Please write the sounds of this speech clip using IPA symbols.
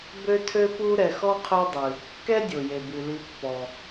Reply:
bø˦tʰø˦pu˦ ɾɛ˨xɔ˥qʰø˦dˤɨ˩ | kɛ˥dʲo˩je˩ bɨ˩li˨pːɔ˩

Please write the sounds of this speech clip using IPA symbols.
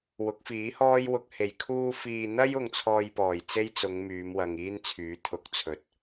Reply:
wʊ˨˥k̚fiː˨˥hɔː˥jwʊ˧k̚ he˨˩jkʰuː˧fiː˨n̪ɐ˥j ʊ˧ŋt͡sʰɔː˧jpɔː˨˩j t͡se˥jt͡sʊ˨˧ŋ myː˨˧mwɐ˨ŋ iː˥nt͡sʰyː˨˥ t̪ʰʊ˨˥k̚t͡sʰɵ˨˥t̚

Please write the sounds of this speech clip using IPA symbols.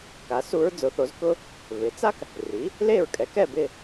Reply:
ka˩˥su˧˥ɹ d͡zʊ˩˥θo˩˥zkʊ˥ | βɪ˩˥t͡sa˥k | ri˩˥ | le˥˨ɹkʼɛ˩˥kɛ˥˨ bɪ˥˨

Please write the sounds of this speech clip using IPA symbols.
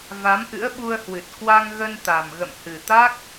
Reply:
va˨˦mʔɨ̰˧˥ə̯ɓu˧ə̯hwɨ˨˩t̚ kwa˧ŋɣə˧nt̪a˨˩m ɣə̰˧˨mhɨ˨˩t̪a˦˥k̚

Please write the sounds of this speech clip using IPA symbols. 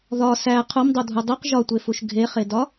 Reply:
ðɒ sæ qʰomdˤodʱu dˤiq ʒɒtʷefuʃ ɡʱeχedɒ

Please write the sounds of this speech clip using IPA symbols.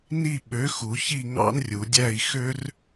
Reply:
ni˦˨ ɓø˨˥xu˩˧çi˦˨ ŋɑ̰˦nrʲu˩˧dʲæ˦˨i̯ xø˦r

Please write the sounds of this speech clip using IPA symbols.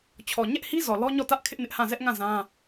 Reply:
t͡ɕʰɔ˨ɲɛ˦ʔhi˦zɔ˨ lɔ˦ɲɔ˦˨tä˦ʔ kʰɪ˦ʔnɪ˦ʔhã˦˨ zɛ˦ʔŋã˦˨ zã˦

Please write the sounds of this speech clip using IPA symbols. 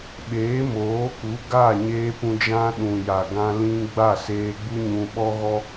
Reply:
ɓeː˨˦moː˨˦ku˨˦ ɡa˦˨ɲeː˧ pũ˧d͡ʒã˦ ɗũ˨ja˨ɡã˧ lĩ˦ ɡ͡ba˦˨seː˧ ɡ͡bu˦ɲũ˧ɓɔ˦ɣɔ˦

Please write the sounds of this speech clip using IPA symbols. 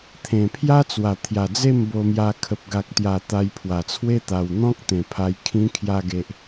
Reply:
t̪ʰẽ˨˩pʰja˦t͡swa˨˩ t̪ʰja˨˩d͡ze˥˧mbo˧mja˧ kʰə˨p̚ɡa˨k̚t̪ja˨˩ t̪a˧jpʰwa˨˩t͡sʰwe˦ t̪a˨˩wn̪ɔ̃˦k̚ t̪ẽ˨˩pʰa˧j kʰĩ˧kʰja˧ɡe˨ʔ

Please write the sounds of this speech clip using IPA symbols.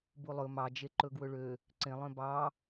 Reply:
bulˠɵ mɑd͡ʒe ǃɵɡwɵɭø | ǀẽlˠœ̃ bɑ

